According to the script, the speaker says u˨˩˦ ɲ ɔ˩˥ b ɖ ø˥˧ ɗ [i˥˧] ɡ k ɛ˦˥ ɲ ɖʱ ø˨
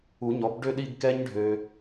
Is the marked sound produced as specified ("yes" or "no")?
yes